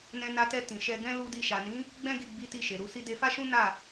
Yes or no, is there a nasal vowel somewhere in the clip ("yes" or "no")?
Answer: yes